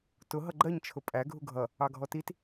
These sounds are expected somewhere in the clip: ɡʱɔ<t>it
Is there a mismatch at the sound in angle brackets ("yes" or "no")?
no